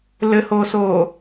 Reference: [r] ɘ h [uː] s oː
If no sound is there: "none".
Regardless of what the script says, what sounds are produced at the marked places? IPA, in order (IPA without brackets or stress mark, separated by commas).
l, oː